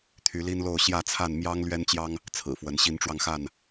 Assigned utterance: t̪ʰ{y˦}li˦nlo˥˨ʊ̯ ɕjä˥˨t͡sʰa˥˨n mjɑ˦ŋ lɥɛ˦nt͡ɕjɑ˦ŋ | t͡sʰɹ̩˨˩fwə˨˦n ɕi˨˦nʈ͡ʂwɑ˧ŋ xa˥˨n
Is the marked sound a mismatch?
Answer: yes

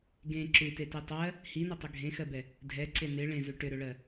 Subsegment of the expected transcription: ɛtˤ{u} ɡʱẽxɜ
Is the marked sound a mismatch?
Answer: yes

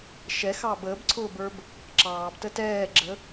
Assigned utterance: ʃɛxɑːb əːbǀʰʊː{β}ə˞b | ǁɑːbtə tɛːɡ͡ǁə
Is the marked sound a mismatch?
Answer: yes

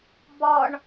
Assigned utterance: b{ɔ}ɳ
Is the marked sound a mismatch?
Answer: no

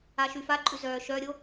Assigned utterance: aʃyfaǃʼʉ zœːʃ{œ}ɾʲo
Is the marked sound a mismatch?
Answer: no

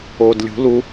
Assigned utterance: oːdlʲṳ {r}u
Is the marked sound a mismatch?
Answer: yes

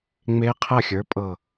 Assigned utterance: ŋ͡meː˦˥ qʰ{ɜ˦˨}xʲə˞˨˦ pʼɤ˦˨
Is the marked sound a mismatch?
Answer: no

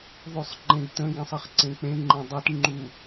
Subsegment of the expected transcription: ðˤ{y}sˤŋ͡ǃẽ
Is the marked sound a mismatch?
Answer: no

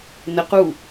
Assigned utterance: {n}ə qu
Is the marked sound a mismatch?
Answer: no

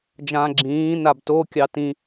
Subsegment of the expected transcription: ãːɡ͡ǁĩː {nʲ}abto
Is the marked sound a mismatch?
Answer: yes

